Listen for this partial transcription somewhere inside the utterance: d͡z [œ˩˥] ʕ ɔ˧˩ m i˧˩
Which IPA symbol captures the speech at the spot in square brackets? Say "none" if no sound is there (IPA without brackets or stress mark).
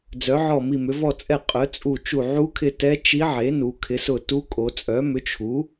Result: œ˩˥